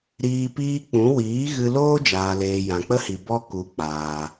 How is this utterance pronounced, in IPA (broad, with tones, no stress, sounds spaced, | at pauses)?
ɾ iː˧ p iː˦ k͡p ũ˨˦ w iː˨˦ ɣ ɨ˧ l oː˦ d͡ʒ aː˨ l eː˨ j ã˨ k͡p ə˦ h i˨ b ɔ˧ k u˨˦ k͡p aː˨